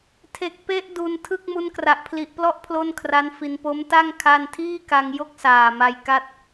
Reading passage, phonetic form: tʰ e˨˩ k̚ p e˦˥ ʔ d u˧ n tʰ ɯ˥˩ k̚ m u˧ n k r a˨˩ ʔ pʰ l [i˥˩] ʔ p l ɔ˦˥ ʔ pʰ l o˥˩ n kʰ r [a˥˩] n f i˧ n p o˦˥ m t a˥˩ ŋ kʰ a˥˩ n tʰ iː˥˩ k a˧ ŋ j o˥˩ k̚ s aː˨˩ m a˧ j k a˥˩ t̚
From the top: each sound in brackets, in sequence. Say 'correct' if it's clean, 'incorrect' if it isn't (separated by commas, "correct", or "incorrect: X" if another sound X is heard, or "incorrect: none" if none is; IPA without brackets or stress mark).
incorrect: i˨˩, incorrect: a˦˥